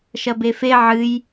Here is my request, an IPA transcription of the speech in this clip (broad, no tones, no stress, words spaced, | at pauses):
ʃɐbefe ʕɨj